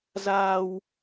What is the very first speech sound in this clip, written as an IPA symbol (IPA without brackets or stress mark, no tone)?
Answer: z